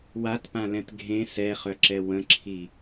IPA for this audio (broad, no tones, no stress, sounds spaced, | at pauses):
w a t p ã l ɛ̃ t ɡʱ ẽ s ɛ χ œ ǁ ɛ w ə̃ ǁʰ i